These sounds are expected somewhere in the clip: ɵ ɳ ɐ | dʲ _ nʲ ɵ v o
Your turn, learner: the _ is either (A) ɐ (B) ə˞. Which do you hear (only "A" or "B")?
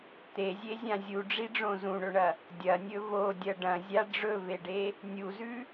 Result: A